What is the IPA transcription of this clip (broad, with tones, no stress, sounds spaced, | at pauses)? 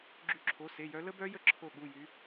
ɡ͡ǁ y˨˦ ǁʰ o˩˧˩ s e˩˧˩ j œ˨˦ l ə˦˥ b œ˦˥ j ə˦˥ ǁʰ o˧˩ ɠ u˩˧˩ j y˨˦